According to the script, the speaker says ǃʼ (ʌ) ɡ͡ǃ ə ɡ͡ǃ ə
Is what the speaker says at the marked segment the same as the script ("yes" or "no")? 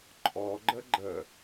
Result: no